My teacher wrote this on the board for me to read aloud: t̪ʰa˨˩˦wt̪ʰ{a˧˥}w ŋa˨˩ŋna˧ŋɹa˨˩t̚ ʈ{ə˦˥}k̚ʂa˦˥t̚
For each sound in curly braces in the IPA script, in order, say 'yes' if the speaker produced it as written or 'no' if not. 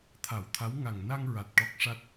yes, no

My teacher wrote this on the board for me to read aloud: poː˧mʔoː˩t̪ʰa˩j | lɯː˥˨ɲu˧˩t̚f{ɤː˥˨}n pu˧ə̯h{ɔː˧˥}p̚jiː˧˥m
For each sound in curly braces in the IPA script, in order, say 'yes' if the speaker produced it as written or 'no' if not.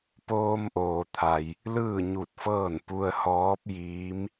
yes, yes

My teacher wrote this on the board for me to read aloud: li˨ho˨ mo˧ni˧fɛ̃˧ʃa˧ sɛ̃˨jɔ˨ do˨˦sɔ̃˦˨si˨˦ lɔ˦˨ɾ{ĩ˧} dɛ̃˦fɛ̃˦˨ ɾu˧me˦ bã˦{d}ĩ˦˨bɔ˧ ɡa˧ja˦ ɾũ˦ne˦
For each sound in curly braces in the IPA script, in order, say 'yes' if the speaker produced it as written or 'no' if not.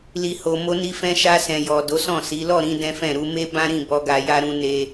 yes, no

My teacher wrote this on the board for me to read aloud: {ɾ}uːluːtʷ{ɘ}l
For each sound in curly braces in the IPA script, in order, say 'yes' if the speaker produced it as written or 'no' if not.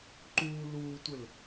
no, yes

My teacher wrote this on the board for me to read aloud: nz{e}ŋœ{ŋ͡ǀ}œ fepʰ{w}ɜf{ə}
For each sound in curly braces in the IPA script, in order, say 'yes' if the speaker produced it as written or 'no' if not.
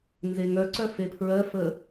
yes, no, no, yes

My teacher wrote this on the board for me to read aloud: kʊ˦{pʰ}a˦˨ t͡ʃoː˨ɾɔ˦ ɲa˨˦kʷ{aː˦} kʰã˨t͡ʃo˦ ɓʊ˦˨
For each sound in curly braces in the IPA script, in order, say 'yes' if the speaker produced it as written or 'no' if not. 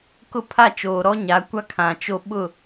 yes, no

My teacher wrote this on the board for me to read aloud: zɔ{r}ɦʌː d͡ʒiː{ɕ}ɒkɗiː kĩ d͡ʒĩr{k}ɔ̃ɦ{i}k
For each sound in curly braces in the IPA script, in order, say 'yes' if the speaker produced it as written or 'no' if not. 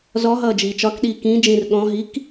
no, no, no, yes

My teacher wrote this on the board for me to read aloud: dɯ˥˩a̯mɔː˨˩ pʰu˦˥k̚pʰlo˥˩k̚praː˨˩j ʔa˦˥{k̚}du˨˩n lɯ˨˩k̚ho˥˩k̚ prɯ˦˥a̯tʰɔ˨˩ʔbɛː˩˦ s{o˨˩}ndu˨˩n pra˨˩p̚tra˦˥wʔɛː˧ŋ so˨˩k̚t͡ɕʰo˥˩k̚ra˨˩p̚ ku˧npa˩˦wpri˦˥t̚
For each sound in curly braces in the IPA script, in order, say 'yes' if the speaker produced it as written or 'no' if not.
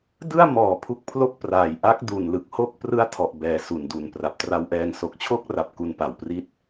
yes, no

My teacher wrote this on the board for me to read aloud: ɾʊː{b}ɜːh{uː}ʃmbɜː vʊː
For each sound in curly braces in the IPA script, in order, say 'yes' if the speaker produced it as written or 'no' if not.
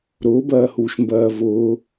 yes, yes

